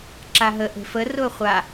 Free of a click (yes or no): no